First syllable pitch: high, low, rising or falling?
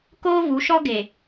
high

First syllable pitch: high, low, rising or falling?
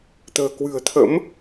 low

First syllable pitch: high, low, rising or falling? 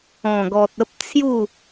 low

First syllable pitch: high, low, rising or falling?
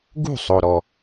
falling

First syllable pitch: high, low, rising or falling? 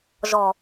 low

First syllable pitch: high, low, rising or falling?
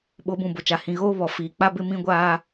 rising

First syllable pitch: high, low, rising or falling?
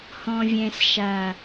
low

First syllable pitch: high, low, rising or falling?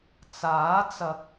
rising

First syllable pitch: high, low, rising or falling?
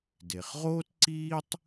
low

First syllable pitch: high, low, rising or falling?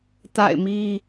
falling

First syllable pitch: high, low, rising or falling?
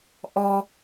low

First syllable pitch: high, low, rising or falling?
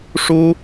high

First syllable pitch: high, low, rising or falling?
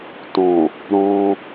low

